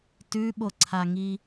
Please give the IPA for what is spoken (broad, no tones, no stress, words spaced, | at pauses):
tʉɓoǀʰaŋi